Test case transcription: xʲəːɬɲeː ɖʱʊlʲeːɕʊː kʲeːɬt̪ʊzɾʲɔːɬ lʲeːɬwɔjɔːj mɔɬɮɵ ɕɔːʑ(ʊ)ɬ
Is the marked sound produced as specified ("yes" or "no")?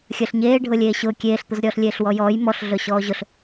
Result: yes